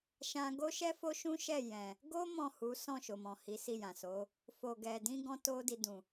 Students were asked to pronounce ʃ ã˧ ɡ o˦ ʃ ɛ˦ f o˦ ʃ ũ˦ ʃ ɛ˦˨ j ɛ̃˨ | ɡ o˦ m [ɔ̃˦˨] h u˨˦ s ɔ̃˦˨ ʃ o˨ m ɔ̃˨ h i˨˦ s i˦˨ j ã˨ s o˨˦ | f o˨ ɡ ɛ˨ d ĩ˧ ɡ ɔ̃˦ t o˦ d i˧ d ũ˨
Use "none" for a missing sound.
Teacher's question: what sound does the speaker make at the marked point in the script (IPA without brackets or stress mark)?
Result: ɔ̃˦˨